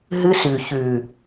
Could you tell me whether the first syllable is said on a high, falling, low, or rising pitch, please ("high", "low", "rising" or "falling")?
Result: high